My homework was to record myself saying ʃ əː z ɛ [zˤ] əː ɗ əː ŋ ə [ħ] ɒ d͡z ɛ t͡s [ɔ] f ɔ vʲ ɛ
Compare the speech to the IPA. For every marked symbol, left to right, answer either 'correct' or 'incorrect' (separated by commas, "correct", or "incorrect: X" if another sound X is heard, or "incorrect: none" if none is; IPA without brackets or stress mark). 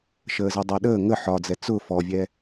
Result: incorrect: dˤ, correct, incorrect: ʊ